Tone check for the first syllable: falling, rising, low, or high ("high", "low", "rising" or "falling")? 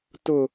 low